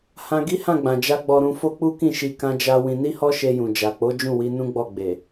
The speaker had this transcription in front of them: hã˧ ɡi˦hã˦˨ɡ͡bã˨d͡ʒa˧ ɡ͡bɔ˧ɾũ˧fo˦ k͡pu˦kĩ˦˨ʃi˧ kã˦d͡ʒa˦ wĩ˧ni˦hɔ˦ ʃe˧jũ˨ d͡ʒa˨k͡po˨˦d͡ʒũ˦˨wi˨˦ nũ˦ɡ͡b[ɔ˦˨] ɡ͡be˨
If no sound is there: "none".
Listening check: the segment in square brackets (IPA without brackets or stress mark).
ɔ˦˨